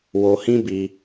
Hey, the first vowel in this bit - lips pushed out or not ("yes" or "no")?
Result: yes